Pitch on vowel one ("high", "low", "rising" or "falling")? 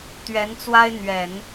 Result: rising